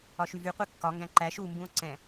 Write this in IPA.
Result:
ɒʃyvyqʷe kːɒŋɡæ̃ ǃæʃ umbũo̯ ǀɛ̃

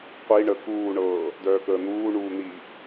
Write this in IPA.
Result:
qʷi ɳə kuːɳɤː | dœːkəːn̪uː ɳuːn̪i

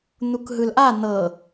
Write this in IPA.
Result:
n̪ukɦɯlʔa n̪ɤ

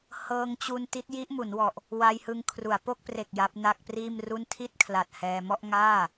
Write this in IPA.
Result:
hɤː˧ŋ t͡ɕu˧n ti˦˥t̚ji˦˥ʔmu˩˦nwɔ˨˩ʔ | wa˧jhɯ˧ŋ kʰru˩˦a̯po˥˩k̚ pre˨˩k̚ ja˦˥p̚na˥˩k̚priː˥˩mru˥˩n tʰi˥˩t̚kʰla˨˩t̚ hɛː˧mɔ˥˩ʔ ŋaː˥˩

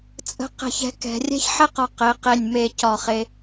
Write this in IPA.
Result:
t͡sʼə̤˧ qɛ̤˧˩çɛ̤˧kɛ̤˩˧ rʲɛ̤˥˧çħɛ˥qɒ˧ qe˩˧qe˧˩nʲ me˧˩cɒ˧˩χe˧

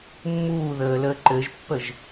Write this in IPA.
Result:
mːuːðəː ləːǃɘʒpːəʒ

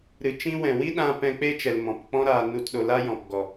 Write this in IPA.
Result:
ɾɨ˨t͡ʃĩ˦ wɛ̃˨wi˦ɗã˧ pɛ̃˧k͡pe˦t͡ʃɛ˨l mɔ̃˨pk͡pɔ̃˦ ɾaː˧nu˧tɗo˧ la˦jɔ̃˨pɡɔ˨

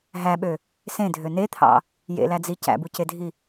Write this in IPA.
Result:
ɦæɓø | sẽdʱø net̪ʰɑ̰ | jḛlæd͡zi cæ̰bucedʱi

